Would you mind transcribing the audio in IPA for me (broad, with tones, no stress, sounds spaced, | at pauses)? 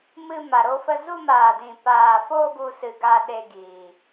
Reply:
m ɨ˧ m a˨ ɾ o˧ f ə˧ z u˧ m aː˨ d ĩ˨ p aː˨ f o˧ ɡ u˧ s ɨ˨ ɡ a˧ ɗ e˧ ɡ iː˨